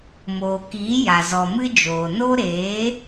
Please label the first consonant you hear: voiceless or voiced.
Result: voiced